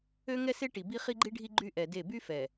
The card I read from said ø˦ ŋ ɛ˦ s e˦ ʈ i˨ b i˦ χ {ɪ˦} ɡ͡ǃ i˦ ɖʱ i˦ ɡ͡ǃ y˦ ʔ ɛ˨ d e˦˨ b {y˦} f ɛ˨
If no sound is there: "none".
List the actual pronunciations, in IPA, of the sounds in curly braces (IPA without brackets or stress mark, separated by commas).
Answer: i˦, y˦